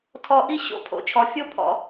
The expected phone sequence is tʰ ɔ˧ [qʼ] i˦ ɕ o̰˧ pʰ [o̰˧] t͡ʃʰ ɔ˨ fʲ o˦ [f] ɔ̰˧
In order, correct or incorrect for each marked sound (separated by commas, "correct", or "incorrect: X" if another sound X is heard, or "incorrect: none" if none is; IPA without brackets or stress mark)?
incorrect: ʔ, incorrect: o̰˨, incorrect: pʰ